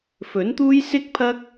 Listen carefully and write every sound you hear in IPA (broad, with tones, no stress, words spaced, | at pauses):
fɵ˨˥nt̪uː˥j sɪ˥k̚pʰɐ˥k̚